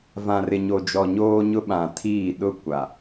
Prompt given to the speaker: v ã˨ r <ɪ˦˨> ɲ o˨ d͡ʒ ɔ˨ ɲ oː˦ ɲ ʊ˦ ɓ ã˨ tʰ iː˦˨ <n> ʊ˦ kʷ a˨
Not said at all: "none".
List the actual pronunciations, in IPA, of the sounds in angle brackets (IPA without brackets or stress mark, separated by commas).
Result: ɪ˨, ɗ